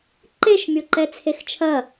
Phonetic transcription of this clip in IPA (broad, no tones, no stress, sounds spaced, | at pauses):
ǃ e ʃ mʲ o ǃ ɛ t͡sʰ e x t͡ʃʰ ɐ